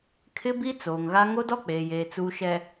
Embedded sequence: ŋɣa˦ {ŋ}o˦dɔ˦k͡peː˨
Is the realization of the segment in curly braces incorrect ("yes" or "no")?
no